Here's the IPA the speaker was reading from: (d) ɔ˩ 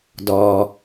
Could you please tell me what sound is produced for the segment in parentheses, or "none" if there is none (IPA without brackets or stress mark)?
d